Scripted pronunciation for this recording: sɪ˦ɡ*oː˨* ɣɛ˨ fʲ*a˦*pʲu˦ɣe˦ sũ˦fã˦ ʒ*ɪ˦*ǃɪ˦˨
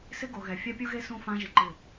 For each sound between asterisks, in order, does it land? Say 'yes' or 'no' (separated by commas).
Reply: no, yes, yes